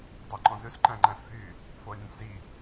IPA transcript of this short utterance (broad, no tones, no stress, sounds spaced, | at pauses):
dˤ ɑ ǃ ɔ̃ z ʉ s ǃ æ̃ ŋ͡ǃ æ̃ s f y | f o ə̯ nʲ õ sʲ z i